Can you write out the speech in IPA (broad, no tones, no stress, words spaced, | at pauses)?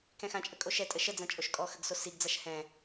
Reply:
kɛ̃xãt͡ʃʼə kʼoʃɛtʼə ʃəd͡zã t͡ʃʼoʃkʼɔxəɡ sosiɡd͡zaʃ hɛ̃